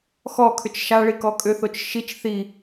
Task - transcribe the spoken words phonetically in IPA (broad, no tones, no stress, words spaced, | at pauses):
xɔkʰʏt͡ʃ ʃaɭi kɔkʼʏθot͡ʃ ʃit͡ʃ θi